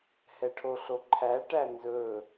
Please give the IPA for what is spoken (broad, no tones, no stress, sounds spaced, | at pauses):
h ɛ ʈʰ o ɬ o ǃʰ æ ʈ æ n z ɵ